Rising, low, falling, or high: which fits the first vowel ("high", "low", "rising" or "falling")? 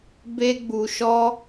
high